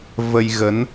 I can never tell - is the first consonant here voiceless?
no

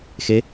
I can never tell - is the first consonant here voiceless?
yes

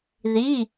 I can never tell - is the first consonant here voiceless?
no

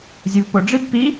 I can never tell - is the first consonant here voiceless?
no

